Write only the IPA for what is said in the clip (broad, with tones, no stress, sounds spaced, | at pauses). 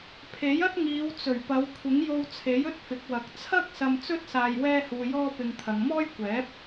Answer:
pʰ e˨˥ j ɐ˥ t̚ ŋ iː˨˧ w t͡s ɵ˨˩ ɥ p ɐ˨˧ w kʷʰ ɪ˨˥ ŋ j o˧ w t͡sʰ e˨˥ j ɵ˥ t̚ f ɪ˨˥ k̚ w ɐ˨˥ k̚ t͡sʰ ɐ˥ k̚ s ɐ˧ m t͡s ɵ˥ t̚ s aː˧ j w ɛː˥ h uː˧ j ɔː˥ p ɪ˧ ŋ t̪ʰ ɐ˨˧ ŋ m ɔː˥ j kʷ ɛː˨˥ p̚